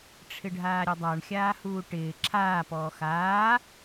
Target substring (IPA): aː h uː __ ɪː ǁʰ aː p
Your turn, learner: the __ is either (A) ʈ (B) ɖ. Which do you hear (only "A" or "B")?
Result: A